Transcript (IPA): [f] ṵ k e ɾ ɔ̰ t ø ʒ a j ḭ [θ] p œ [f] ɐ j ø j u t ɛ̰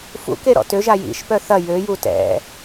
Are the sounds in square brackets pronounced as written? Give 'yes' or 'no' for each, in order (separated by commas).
yes, no, no